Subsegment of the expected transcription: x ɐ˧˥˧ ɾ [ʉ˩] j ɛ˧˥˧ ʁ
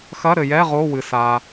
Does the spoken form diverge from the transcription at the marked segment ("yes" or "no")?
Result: yes